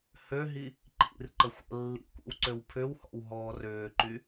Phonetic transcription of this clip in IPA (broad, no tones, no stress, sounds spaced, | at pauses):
h ø ɦ i | ǃ ḭ r ǃ ə xʷ ə̰ lː ḭ kʷ ḭ w ǀ ø w pʰ ʏ w h ɔ̰ w ɦ ɔː r ʏː ǃ y